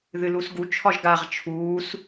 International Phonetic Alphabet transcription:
ð ɨ l u s ɡ u t͡ʃʰ ɒ ʒ ɡ a ʁ t͡ʃʰ uː s

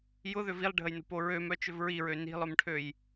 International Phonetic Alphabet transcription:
j ʊ ð ʏ v i lˠ ɖʱ ə j n o̤ p o ɹ ø m œ t͡ʃ ʏ v ɹ i ɹ ø n i̤ lˠ œ m ʈʰ ø j

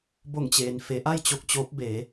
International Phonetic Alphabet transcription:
b o˧˩ ŋ t͡ɕ eː˩ n f e˩˧ ʔ a˥˨ j t͡ɕ o˥˨ k̚ t͡ɕ oː˧˥ p̚ b eː˩˧

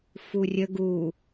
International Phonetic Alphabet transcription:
f u rʲ ə ɡ u

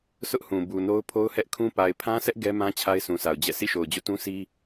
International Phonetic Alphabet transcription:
s ʊ˦ ʔ h ũ˨ b u˨ n o˦ ʊ̯ pʰ o˦ ʊ̯ h ɛ˦ ʔ kʰ ũ˦ p a˨ ɪ̯ pʰ ã˦ s ɛ˦ ʔ ɡ ɛ˦ m ã˦ t͡ɕʰ a˦ ɪ̯ sʰ ũ˨ s a˨ ʊ̯ d͡ʑ ɛ̰˦˨ sʰ ḭ˦˨ ʃ o˨ ʊ̯ d͡ʑ o̰˦˨ t ũ˦ sʰ i˦

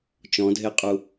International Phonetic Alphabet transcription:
t͡ʃ ɔ̃ dʱ e qʼ u

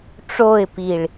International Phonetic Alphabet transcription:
ʈ͡ʂ o ɪ̯ p i ɭ

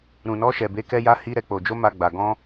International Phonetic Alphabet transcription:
ɾ ũ˧ n ɔ˦ ʃ ɛ˧ b e˦ k ɛ˦ j a˦ h i˦ ɾ ɛ˧ k͡p o˧ d͡ʒ o˦ m a˧ ɡ͡b a˧ ɡ ɔ̃˦

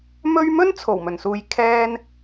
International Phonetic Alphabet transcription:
m ɵ˧ ɥ m ɵ˥ n t͡sʰ o˨˩ w m ɵ˨˩ n s uː˨ j kʰ ɛː˧ n

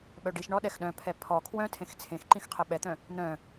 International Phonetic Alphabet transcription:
ɓ œ ɖ i ʃ ɳ ɔ ɗ ɛ x ɗ œ̃ pʰ ɛ pʰ ɔ kʰ w œ̃ tʰ ẽ x t͡sʰ ẽ x ǃ ĩ x qʰ ɛ ɓ ɛ t̪ œ̃ | n̪ œ̃

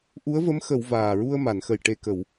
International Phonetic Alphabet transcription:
ʔ u˧˥ ə̯ v ə˧˥ m x ə˨˩˨ w v aː˨˩ ɹ u˧ ə̯ m a˨˩˨ n x ə˨˩ j ʈ e˨˩ k ə˨˩˨ w

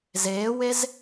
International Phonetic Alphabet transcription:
z eː w e z

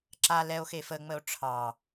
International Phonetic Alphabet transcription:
ǁ a l ɛ o̯ x e f ə ŋ͡m ə o̯ ʈ͡ʂʰ ɑ

